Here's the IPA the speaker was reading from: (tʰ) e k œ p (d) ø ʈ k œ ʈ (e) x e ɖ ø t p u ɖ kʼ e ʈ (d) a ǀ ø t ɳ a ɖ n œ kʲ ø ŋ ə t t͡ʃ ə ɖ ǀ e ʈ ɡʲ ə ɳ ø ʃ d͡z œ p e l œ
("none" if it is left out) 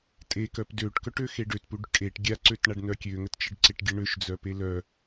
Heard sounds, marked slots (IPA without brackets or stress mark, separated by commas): tʼ, d, ø, ɡʲ